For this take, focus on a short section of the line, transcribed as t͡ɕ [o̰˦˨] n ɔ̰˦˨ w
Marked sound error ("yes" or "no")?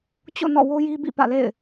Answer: no